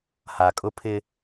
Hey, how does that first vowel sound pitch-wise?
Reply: low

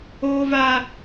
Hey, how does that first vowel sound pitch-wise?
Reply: high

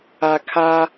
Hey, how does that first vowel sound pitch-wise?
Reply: low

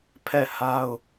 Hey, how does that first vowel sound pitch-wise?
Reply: falling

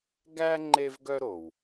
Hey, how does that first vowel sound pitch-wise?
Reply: high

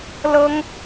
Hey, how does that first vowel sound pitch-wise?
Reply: high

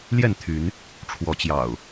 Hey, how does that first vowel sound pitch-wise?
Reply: falling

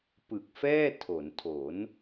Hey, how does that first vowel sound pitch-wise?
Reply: low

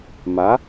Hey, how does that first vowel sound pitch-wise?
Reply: rising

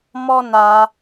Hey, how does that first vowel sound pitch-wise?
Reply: high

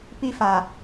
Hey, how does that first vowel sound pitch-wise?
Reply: high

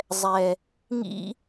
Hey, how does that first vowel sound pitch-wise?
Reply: low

